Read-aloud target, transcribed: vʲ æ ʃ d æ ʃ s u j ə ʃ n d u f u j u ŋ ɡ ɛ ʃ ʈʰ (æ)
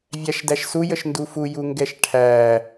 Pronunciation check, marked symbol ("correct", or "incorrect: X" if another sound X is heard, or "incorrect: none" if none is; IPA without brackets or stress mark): correct